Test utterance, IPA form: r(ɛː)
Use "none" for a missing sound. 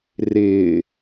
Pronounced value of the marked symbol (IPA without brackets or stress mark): ɪː